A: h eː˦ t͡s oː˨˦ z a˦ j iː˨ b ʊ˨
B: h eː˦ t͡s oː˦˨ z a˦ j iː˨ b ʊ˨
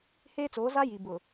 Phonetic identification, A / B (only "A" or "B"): A